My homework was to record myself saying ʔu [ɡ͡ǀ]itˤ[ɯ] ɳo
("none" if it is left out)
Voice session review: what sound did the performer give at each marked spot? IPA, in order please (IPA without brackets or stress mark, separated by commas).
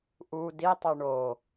d, ɯ